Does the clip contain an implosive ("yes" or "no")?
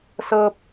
no